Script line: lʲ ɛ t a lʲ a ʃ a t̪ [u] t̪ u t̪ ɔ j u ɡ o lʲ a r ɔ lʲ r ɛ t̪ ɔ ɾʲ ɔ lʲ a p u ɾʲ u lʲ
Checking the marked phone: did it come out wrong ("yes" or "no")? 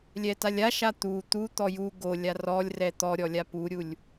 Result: no